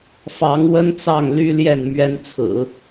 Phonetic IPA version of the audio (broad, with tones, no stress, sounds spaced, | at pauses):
f ɑ˧˥ ŋ w ə˥ n t͡s ɑ˥˩ ŋ l y˥ l j ɛ˥˩ n m ɥ ɛ˥ n t͡sʰ ɹ̩˨˩˦